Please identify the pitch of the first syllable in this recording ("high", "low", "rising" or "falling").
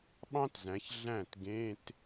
high